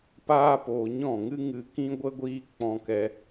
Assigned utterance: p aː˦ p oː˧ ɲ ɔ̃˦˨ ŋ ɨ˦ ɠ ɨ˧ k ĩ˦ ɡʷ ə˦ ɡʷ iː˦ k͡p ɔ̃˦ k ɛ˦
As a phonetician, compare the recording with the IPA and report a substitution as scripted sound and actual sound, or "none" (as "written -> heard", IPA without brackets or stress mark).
ɠ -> ŋ